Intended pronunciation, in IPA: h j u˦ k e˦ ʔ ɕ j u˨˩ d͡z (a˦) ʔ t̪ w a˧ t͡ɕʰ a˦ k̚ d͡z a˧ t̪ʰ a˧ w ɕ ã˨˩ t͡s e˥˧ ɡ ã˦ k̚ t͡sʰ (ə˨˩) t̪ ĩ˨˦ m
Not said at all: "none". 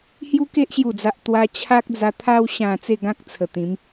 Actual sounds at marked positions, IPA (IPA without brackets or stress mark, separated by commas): a˨, ə˨˩